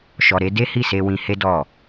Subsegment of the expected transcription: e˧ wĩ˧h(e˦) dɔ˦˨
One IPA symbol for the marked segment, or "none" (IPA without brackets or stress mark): e˦